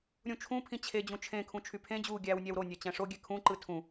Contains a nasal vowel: yes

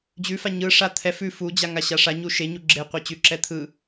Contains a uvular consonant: yes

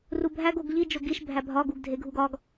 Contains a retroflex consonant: no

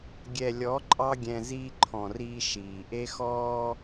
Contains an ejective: yes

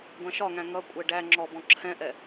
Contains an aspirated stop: yes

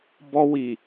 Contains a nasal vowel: no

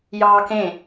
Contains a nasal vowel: yes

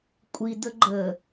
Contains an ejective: yes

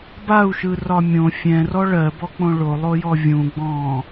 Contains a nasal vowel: yes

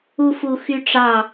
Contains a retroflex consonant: yes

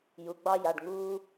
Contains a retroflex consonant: yes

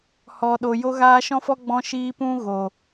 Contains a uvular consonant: no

